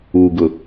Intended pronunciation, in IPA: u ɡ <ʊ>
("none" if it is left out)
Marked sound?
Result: ʊ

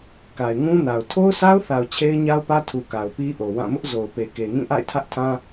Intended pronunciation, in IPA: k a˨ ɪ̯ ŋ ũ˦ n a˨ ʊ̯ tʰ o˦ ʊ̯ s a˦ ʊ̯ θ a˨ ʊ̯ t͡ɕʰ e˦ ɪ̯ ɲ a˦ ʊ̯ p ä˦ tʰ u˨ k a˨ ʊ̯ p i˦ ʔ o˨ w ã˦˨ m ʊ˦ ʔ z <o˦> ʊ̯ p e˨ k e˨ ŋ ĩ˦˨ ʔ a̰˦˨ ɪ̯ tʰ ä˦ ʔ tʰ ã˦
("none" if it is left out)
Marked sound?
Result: o˨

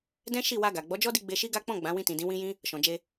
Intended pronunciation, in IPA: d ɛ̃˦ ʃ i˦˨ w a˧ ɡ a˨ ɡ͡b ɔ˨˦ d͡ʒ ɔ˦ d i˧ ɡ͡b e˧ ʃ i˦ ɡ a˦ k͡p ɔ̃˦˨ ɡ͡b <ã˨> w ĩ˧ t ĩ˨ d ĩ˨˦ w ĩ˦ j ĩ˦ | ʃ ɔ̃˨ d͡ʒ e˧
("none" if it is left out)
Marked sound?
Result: ã˨˦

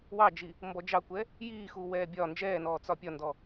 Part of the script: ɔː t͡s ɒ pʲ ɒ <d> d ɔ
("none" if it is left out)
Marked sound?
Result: n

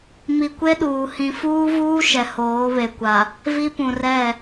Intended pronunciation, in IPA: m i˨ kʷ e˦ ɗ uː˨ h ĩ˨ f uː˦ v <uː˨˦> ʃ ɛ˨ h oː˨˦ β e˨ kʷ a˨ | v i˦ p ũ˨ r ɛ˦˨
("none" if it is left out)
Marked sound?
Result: uː˦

